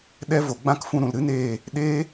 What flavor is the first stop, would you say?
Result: implosive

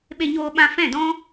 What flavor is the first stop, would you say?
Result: implosive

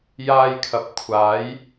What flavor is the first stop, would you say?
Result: aspirated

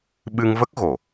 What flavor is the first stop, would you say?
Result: implosive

